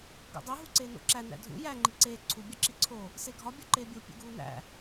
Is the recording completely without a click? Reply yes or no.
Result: no